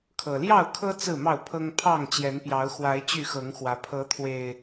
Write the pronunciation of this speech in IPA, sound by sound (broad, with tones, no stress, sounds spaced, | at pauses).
kʰ ɤ˨˩ l j ɑ˥˨ ʊ̯ kʰ ɤ˦ t͡s ɹ̩˥˨ m ɑ˥˨ ʊ̯ pʰ ɤ˦ ŋ pʰ ɑ˥˨ ŋ t͡ɕ j ɛ˨˦ n p j ɑ˨˦ ʊ̯ x w a˨˦ ɪ̯ t͡ɕ y˥˨ x ɤ˨˦ ŋ x w ä˨˦ pʰ ɤ˨˦ t̪ʰ w e˨˩ ɪ̯